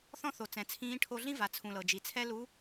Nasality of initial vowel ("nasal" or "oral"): nasal